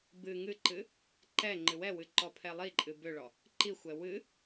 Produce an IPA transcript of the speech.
b ɨ ŋ ɨ ǃ ɨ | ǃ ɛ ŋ͡ǃ ɨ w ɛ w ɨ ǃ ɔ pʰ ɛ lˠ i ǃʼ ɨ b ʏ ɭ ɔ | ǃ i xʷ ɛ w ɨ

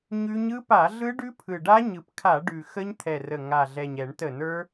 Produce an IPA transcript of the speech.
ɲ ʉ˦˥ ɲ ɯ˦˥ p a˧˩˧ ɮ ɯ˦˥ ɖ ʉ˦˥ pʰ ɯ˨˩ ɖ a˦˥ ɲ ɯ˨˩ p kʰ a˧˩˧ ɖ ʉ˨˩ x ə˦˥ ɲ t̪ʰ ɛ˨˩ r ə˨˩ ŋ a˨˩ ɮ ɛ˨˩ ɲ ɛ˧˩˧ ɳ t ə˧˩˧ n ə˞˦˥

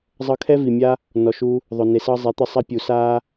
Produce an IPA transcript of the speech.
zˤ ɤ˧ kʰ ɛ˦ v i˨ mʲ a˦ | n ɔ˨ ʃ u˦ | ðˤ o˨ n e˨ s ɤ˦ zˤ e˨˦ t̪ ɯ˧ sˤ a˦ pʲ u˨ s a˦

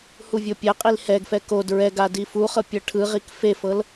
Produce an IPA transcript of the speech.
h u vʲ o pʲ ɛ qʼ i l h ɛ ɡ f ɛ k o d ɹ ɛ ɡ a d i f u χ ɤ pʲ ɤ ʈʰ ɯ ʁ i k f e f ɤ l

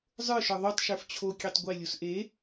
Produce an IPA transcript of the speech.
zˤ ə˞ ʃ ə˞ ðˤ u tˤ ʃ ə˞ f t͡ɕʰ o kʲ e tˤ ɡʷ e lʲ u s ʔ e

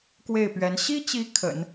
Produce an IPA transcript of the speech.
k w e˥˩ ɪ̯ p ɥ ɛ˧˥ n ɕ i˥ t͡ɕ i˧˥ kʰ ə̰˨˩˦ n

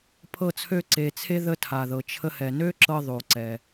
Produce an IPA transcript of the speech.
pʰ ɤ˧ t͡sʰ ø˧ ǀ e˩ t͡sʰ e˧ ð ə˧ tʰ a˩ ð ɤ˩ t͡ʃʰ ə˧ h ɛ˩ n ø˥ ǁ ɤ˧ ðˤ o˩ ǀ ɛ˩

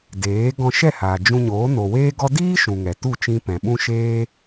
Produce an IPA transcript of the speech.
d eː˨˦ ɡ ɔ̃˧ ʃ ɛ˦˨ h aː˨ d͡ʒ ũ˧ ɲ oː˨˦ n o˨ w eː˦ ɡ ɔ˦ d iː˦ ʃ ũ˨ ŋ ɛ˨ t u˦˨ t͡ʃ ĩ˧ p ɛ̃˨ ɓ ũ˦ ʃ eː˦

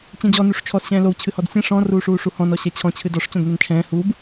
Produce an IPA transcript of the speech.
t͡ɕ ɛ̃ d͡ʑ ɔ n u ʂ t͡ʃʰ ɔ s ɕ ɛ̃ː l o w t͡ɕʰ ɨ h ɔ d sʲ ɛ̃ ʂ ɔ̃ r uː ʂ uː ʂ u h ɔ̃ n ɔ ɕ ɛ t͡ɕʰ ɔ̃ t͡ɕʰ ɨ d ɔ ʂ t͡ɕ ɔ̃ d n ɛ n t͡ʃʰ ɛ̃ː h u b

